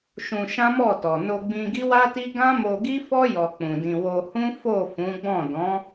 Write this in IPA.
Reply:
ʃ ũ˧ ʃ ã˦ m ɔ˦˨ t ɔ˨ n o˧ ɡ͡b ĩ˧ ɡ i˦ w a˦ t i˦ ɡ ã˦ m o˧ ɡ i˦ f ɔ˦ j ɔ˧ k͡p ũ˨ d ĩ˧ w o˧ h ũ˦ f o˦˨ f ũ˨˦ ɡ͡b ɔ̃˦˨ d ɔ̃˨˦

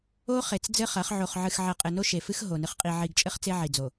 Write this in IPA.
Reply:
o˦ χ e˨ t͡s d͡z ɘ˦ χ ɐ˨˦ χ ʕ o˨ χ ʕ ɨ˨ x ʕ ɐ˨ qʼ ɘ˨ n o˦ ʃ e˨ f ɨ˦ x ɦ o˨ n ɨ˨ χ qʼ i˨ ʕ i˨ ɡ t͡ʃʼ ɘ˦ χ t͡s e˦ ʕ i˨ d͡z o˨

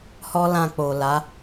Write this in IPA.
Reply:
h ɔ˦ l ã˧ k͡p o˨ l a˨˦

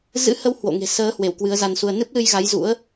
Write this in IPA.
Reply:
z ɨ̰˧˥ h ə˧ w h w o̰˧˨ ŋ e̤˨˩ s əː˨˦ h w e˧˩ w k w ɨ˨˦ ə̯ z a˧ n s u˧ ə̯ n ɨ˦˥ p̚ l ɨ˧ j ɣ a˨˦ j z ṵ˧˥ ə̯

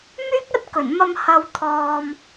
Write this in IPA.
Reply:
m yː˥ k̚ ɐ˥ t̚ k ɵ˨˩ n m ɐ˧ m h ɐ˧ w t̪ʰ ɔː˧ m

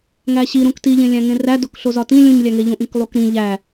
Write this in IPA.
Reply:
ŋ æ ɕ i ɾ ũ k t i ʎ ẽ lʲ æ̃ ŋ ẽ r æ d o k ɬ o z ɒ t ĩ lʲ ũ ɲ lʲ æ ŋ e ʎ ũ ʔ ĩ k lˠ u k ɾ ĩ ʎ æ

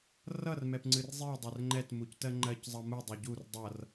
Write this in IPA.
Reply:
r ʌ r m ɛ p ŋ͡ǀ ɨ r zˤ i dˤ œ r ŋ͡ǃ ɛ t m u c t ɜ ŋ͡ǃ ɜ c zˤ ʌ m u dˤ œ ɟ u r dˤ ʌ r

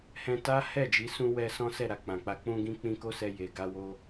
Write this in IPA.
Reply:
h ɛ̃˧ t a˦ h ɛ˦˨ d͡ʒ i˨˦ s ũ˦ w ɛ˦ s ɔ̃˦ s ɛ˦˨ ɾ a˨ k͡p ã˨ k͡p a˧ k͡p ũ˦ ɡ ĩ˦ k͡p ĩ˦ k o˦ s ɛ˧ j e˨ ɡ a˧ w o˦

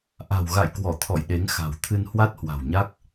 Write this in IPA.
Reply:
ʔ a̤˨˩ w ɣ a̰˧˨ j k w ɔ˧˩ t̪ʰ ɔ̰˧˨ j ɗ e˨˦ ŋ x a̤˨˩ w t̪ʰ ɨ˧ n h w a˦˥ t̚ h w a̤˨˩ w ɲ a˦˥ k̚

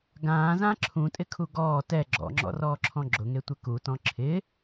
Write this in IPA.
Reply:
ɡ ãː z ã ǁʰ ũ tʼ ɪ kʰ u ɡ ɔː t ɛ ɡ͡ǁ ɔ̰ ŋ͡ǁ ɔ̰ r ɔː ǁʰ ɔ̃ ɡ͡ǁ ʊ ŋ e tʷ ɪ k u t ɔ̃ ǁʰ ɪ

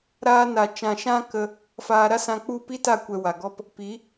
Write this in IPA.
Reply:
ɾ aː˧ n a˨ t͡ʃ ã˨ ʃ ã˦ k ə˧ | f aː˧ ɾ a˦ s ã˧ k͡p u˦˨ p i˦ t a˦˨ kʷ ɛ˨ w a˨ ɡ ɔ˦ p | p i˨˦

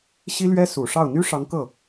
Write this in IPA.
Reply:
ɕ i˥ l ɥ ɛ˥ s u˨˩ ʂ ɑ˥˩ ʊ̯ n̪ y˥ ʂ ɑ˧˥ ŋ k ɤ˥˩

